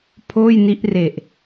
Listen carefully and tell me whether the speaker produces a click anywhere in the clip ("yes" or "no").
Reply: no